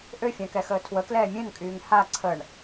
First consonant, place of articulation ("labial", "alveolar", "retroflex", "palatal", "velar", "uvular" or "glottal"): glottal